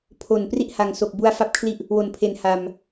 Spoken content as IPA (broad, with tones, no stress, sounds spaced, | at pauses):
pʰ o˨˩ n p r i˥˩ ʔ h a˨˩ ŋ s o˨˩ k̚ b u˧ a̯ f a˥˩ p̚ kʰ l i˥˩ ʔ | w o˩˦ n pʰ e˩˦ n h a˨˩ m